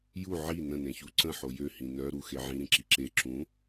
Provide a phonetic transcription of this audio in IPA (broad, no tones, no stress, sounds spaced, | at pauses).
j u ʕ i n ə̃ n ẽ ç u ǀ ə̃ ħ o j ø h ĩ n œ ɾ u x e ʕ ĩ ɾ ĩ ǁ i ǁ e ǁ ũ